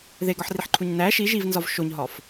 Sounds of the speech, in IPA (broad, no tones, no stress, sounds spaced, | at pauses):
ð e ɡ ɒ ħ r i ħ ǃʰ u ɲ n æ ʃ i ʒ i v n z ɒ v ʃ o ɲ ɦ ɒ f